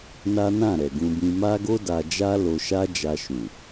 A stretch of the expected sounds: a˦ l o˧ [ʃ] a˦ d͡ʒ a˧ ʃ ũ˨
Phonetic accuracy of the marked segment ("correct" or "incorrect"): correct